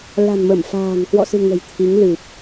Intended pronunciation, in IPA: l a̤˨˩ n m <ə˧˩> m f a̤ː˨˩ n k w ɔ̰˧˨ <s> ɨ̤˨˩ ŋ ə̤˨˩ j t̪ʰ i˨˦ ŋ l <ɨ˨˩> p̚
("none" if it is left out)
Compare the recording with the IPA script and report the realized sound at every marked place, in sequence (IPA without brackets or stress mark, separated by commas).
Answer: ə˧˩, s, ɨ˨˩